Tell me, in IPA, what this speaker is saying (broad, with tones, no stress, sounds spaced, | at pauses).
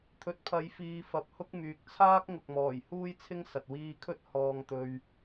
t̪ʰ ɵ˨ t̚ pʰ ɐ˨˧ j f iː˨ f ɐ˨ p̚ h ʊ˥ k̚ m yː˨ k̚ t͡sʰ aː˥ k̚ ŋ ʊ˨ k̚ m ɔː˨˩ j h uː˥ j t͡sʰ ɪ˥ ŋ s ɐ˨ t̚ w iː˧ kʰ ɵ˥ t̚ h ɔː˧ ŋ t̪ ɵ˧ ɥ